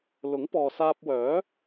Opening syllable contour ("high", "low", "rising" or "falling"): rising